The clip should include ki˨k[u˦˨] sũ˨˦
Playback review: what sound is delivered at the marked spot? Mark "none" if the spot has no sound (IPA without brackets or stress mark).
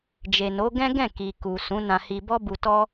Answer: u˨